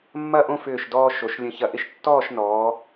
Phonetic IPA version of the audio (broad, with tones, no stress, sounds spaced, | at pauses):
mː ɐ˥˧ ʔ õ˥˧ f ʏː˧˩ ʃ d ɔː˧ ʃ o˩˧ ʃ lʲ ə̃˧ ç ɐ˧ ʔ ɪ˥ ʃ tː ɔː˥˧ ʃ n ɔː˩˧